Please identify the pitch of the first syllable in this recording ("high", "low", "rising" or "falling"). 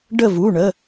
falling